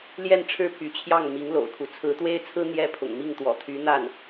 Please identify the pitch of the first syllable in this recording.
falling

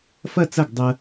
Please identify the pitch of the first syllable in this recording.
falling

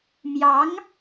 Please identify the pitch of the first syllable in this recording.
rising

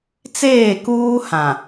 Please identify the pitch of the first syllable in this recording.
falling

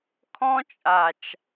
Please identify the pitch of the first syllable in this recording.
high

